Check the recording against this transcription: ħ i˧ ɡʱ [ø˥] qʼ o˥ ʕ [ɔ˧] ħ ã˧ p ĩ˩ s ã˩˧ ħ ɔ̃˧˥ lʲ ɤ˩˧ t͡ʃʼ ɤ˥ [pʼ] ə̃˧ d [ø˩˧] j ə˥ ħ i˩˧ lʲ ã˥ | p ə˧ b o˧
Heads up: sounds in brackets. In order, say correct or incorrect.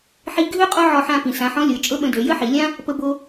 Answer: correct, correct, incorrect: ɓ, correct

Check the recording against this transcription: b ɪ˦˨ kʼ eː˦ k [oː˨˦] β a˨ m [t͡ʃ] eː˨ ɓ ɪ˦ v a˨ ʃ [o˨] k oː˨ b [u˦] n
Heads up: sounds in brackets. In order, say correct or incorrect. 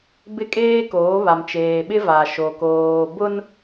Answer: correct, correct, correct, incorrect: ʊ˦

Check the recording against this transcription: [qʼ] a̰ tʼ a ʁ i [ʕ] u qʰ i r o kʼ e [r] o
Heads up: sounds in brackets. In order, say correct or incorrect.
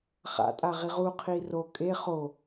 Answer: incorrect: χ, incorrect: ʁ, incorrect: χ

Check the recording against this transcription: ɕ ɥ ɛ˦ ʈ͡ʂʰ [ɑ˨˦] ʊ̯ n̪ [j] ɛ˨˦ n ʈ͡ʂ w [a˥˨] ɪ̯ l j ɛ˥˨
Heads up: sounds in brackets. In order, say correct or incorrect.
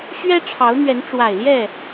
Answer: correct, incorrect: ɥ, incorrect: a˨˩

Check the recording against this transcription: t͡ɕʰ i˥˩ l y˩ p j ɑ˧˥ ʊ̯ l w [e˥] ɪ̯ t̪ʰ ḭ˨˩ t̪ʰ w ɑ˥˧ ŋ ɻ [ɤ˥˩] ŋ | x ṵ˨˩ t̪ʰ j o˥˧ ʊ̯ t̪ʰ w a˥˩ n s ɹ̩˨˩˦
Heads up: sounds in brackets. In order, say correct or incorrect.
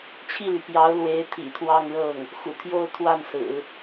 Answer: incorrect: e˧˥, correct

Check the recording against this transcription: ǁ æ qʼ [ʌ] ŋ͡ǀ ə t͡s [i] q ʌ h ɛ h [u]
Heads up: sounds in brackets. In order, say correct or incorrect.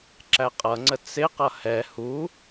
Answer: correct, incorrect: ɪ, correct

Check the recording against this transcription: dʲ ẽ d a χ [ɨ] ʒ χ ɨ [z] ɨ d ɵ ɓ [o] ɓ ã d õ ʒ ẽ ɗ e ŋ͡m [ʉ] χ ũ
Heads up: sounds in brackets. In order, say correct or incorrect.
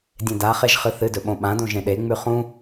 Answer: incorrect: e, incorrect: θ, incorrect: õ, correct

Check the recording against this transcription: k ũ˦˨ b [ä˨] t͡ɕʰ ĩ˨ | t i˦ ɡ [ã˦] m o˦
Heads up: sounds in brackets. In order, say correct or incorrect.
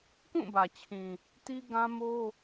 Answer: correct, correct

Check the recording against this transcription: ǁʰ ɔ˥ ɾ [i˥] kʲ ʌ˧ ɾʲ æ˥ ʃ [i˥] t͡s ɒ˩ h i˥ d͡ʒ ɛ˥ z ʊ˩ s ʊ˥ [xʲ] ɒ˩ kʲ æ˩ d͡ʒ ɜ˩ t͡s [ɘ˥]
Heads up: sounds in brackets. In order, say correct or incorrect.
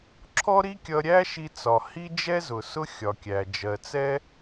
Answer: correct, incorrect: i˧, correct, incorrect: ɛ˥

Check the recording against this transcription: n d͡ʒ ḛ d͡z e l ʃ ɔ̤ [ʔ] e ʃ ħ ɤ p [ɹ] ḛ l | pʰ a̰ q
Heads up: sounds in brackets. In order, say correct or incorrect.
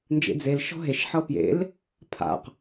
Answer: incorrect: ɦ, incorrect: j

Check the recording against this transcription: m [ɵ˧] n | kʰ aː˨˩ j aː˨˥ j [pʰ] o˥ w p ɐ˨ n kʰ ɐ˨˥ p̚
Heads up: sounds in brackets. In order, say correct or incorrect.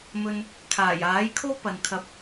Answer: correct, incorrect: kʰ

